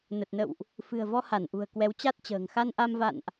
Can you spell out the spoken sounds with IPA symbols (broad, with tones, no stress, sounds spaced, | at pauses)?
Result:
n ə˨˩ t̚ n ə̰˧˨ w ʔ | f ɨ̤˨˩ ə̯ v ɔ˧ h a˧˩ n ʔ ṳ˨˩ ə̯ k w ɛ˨˦ w t͡ɕ a˦˥ t̚ t͡ɕ ə̤ː˨˩ ŋ x a˧ n ʔ a˧ m v a̰˧˨ n ʔ